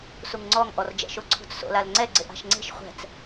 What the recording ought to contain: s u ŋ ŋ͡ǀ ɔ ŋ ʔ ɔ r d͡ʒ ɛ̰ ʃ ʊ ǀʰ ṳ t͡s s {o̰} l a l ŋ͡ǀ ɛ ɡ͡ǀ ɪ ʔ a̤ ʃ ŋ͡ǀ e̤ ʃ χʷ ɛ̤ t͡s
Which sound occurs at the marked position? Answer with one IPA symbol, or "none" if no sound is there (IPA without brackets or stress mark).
o̰